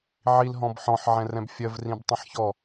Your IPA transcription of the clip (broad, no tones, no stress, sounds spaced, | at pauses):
ʕ i l ɦ ɔ̃ b ħ ɔ̃ ħ ʕ ɛ̃ r ɛ̃ b fʲ ɜ v r ĩ b tˤ ĩ ħ ç ɔ